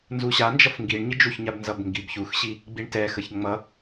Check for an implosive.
absent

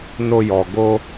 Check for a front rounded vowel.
absent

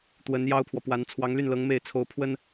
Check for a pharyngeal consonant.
absent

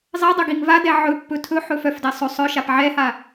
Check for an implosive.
absent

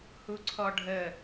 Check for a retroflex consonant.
present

